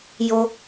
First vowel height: mid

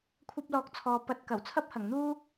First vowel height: low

